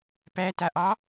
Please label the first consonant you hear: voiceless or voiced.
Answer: voiceless